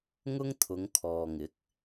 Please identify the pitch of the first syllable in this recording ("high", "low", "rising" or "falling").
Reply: high